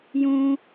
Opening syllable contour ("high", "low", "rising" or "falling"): high